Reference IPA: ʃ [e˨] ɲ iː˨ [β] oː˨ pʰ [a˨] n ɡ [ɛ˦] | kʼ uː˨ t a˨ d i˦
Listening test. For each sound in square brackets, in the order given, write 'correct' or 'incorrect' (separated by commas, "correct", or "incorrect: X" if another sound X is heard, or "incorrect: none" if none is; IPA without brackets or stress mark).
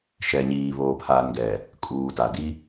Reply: incorrect: ɛ˨, correct, correct, incorrect: ɛ˨